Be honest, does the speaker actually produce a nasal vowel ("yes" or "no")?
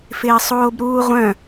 yes